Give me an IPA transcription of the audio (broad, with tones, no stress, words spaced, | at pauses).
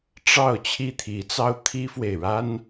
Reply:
ʈ͡ʂɑ˥˩ʊ̯ t͡ɕʰi˥t̪ʰi˧˥t͡sɑ˥ʊ̯ t̪ʰi˥fwe˨ɪ̯ ɻa˥n